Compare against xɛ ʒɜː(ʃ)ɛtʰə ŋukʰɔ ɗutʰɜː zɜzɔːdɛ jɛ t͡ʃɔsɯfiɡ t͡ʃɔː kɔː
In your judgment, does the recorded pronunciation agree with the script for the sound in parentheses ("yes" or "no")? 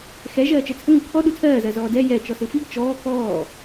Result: no